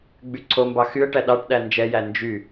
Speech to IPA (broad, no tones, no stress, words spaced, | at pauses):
ɡ͡byǀʰombɑ xyə̯ʈæ ɗɑʈ ɗænd͡ʒɛjæ nd͡ʒy